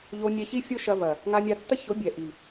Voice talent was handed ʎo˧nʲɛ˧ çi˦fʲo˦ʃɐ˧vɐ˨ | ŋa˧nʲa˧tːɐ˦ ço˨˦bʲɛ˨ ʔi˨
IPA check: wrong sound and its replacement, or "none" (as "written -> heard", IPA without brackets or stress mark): none